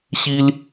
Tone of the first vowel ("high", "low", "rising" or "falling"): high